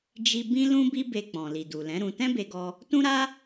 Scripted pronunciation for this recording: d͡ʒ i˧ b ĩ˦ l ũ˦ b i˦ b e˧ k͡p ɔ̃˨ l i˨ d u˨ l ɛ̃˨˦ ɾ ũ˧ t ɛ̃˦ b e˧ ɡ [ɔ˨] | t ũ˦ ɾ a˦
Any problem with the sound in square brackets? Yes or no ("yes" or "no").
yes